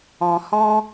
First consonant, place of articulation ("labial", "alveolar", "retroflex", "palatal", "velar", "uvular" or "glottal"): glottal